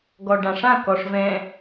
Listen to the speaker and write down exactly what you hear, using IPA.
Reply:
ɡɔɖãʂã kɔʂvɛ̃

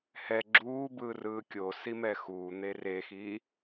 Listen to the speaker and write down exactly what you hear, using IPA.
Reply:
hɛ ɡ͡ǁuːbɯː rɯːkʲosi mɛxuːn̪e rexiː

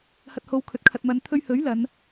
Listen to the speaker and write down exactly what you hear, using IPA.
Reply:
hɐ˨t̚ ho˧wkʰɵ˨˥t̚ kʰɐ˨t̚mɐ˨˧n t̪ʰɵ˧ɥhɵ˨˥ɥ lɐ˨˧n

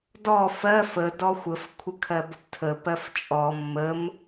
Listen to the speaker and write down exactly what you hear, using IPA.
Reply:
dɔ fɜf ə dɔxʷəf kʷʰəkʰɜbəptʰə pɜft͡ʃʼɔ mːəm

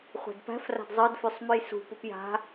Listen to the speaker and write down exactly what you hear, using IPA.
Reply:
χʷæ̤dpæ̤fra̤d zˤə˞dfʉsˤ mʉjsṳ pupja̤

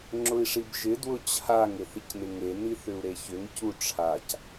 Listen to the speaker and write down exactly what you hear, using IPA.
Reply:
ŋ͡ǁʊi̯ʂibʒɪ dwʊt͡ɕʰaŋ ɪθɪcnɪŋe niθʏu̯ɾeçʏŋ cuʈ͡ʂʰac

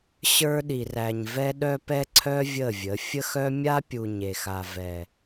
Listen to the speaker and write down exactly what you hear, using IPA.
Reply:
ɕə˞˦ɗi˨ræ˨ɲvɛ˦ ɗœ˦pɛ˦ǀʰœ˦ vʲə˦˨vʲə˨˦ fʲə˦xœ˦ mʲa˦pʲu˨ ɲe˨xa˨ vɛ˨

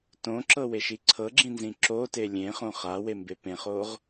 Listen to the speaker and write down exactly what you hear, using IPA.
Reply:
tõǁɤweʃi ǀʰɤɡ͡ǁĩnzĩ ǁote lʲẽχõ χawembe pẽχoʁ

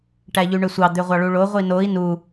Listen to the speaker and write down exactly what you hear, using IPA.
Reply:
ʈæʎyɳøsʷɑ d̪øʁʷɑɭuɭo ʁʷinoi̯ nu

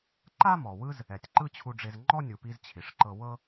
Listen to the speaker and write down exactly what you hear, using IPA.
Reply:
ǃa˥ mɔ˩wɯ˥z | ɛ˩tʲǃɯ˥t͡ɕʰu˧ɖ͡ʐe˧z ŋ͡ǃɔ˥ nʲu˩pi˧z t͡ɕʰi˩ʂǃɤ˧wɤ˥

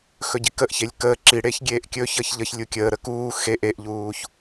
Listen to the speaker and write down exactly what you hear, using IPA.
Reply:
xɵɟikəʔçelʲ kəː ǁiɽeç ɡʲeːʔkʲɵ çəçʎəç lʲukʲəː ɾəkuː xe ʔeʔʎuːç

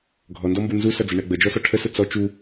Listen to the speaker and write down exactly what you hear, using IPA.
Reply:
ɡʱɔndɔmbu nzusʌd͡zəɳɛ ɡ͡bəd͡ʒɔsɒ ʈʰəsʊ t͡sɔ t͡ʃu

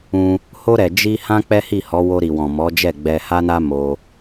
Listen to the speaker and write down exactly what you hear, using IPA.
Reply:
ũ˧ | ho˧ɾɛ˨ d͡ʒi˧ hã˦k͡pɛ˦hi˦˨hɔ˨˦ wo˧ɾi˨wɔ̃˨ mɔ˨˦ d͡ʒɛ˦˨ɡ͡bɛ˧ha˦na˦ mo˧

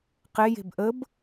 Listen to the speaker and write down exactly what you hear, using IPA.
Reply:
qeje̤b ʔəb

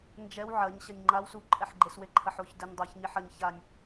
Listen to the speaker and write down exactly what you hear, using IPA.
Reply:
nd͡ʒɛw ʕɐɲɕɐnʲ ŋ͡ǃaw suǃʼɛħ ɡ͡ǃesweǃʰɐħoç dɘnʲ dˤaçɲiħ ɐɲ çanʲ

